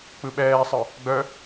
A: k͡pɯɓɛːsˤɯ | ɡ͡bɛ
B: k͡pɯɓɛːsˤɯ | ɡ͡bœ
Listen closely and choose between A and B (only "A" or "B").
B